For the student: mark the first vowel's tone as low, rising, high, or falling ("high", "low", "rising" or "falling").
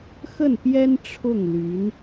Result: falling